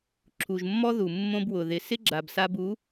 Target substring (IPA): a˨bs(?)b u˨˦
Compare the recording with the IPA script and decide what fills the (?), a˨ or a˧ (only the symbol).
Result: a˧